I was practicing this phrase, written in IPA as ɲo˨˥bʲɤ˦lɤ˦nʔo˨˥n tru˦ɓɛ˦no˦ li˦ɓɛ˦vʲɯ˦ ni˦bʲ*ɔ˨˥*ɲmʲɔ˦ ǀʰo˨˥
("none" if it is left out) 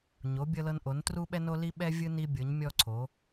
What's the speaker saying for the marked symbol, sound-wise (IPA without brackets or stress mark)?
ɤ˨˥